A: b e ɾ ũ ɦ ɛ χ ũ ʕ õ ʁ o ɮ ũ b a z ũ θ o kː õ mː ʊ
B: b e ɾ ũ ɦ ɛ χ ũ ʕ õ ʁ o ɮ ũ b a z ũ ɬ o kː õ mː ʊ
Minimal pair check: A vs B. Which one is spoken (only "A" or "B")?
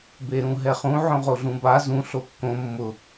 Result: B